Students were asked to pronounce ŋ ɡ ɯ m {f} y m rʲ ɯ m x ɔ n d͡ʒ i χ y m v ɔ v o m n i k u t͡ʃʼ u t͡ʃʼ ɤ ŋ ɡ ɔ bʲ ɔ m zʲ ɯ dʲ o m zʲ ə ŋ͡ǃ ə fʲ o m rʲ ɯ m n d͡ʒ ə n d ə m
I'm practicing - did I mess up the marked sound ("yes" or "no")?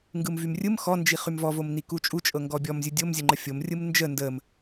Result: yes